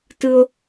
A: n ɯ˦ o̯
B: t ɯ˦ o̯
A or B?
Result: B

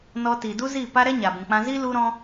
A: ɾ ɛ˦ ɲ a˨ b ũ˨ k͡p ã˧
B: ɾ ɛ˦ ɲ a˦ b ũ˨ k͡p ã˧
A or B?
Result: A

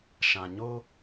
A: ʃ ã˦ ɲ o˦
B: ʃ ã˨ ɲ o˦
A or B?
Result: B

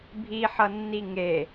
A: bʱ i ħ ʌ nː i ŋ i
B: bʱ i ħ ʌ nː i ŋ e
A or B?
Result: B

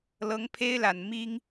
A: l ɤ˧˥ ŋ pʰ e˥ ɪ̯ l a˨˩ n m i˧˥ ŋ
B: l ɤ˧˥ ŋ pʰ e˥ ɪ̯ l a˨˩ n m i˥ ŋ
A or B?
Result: B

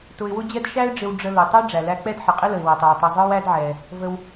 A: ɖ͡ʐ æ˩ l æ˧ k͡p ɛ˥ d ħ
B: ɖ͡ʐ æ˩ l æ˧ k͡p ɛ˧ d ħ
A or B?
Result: A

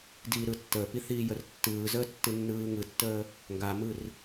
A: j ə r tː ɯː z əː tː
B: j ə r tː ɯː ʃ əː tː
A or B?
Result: A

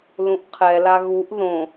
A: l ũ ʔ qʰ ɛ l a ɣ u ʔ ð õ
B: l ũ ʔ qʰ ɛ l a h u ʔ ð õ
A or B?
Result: A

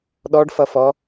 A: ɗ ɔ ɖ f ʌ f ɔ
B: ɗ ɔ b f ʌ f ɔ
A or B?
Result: A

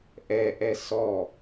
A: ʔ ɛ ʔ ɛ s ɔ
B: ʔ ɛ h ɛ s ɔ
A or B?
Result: A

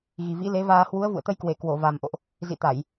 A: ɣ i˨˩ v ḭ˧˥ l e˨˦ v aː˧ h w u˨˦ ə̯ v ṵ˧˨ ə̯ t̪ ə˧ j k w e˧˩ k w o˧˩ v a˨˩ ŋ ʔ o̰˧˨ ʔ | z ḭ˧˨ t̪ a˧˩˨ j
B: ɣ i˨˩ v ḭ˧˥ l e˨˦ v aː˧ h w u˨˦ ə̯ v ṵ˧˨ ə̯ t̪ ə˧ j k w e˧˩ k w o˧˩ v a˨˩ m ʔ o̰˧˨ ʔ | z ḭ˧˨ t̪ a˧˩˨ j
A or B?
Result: B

